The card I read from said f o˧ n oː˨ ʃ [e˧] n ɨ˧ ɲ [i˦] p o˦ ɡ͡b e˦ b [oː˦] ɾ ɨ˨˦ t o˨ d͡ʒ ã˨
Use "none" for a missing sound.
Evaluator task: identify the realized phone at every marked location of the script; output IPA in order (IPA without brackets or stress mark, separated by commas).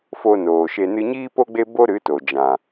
e˧, iː˦, o˦